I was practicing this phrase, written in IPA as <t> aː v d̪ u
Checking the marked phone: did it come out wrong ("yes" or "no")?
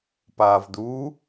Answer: yes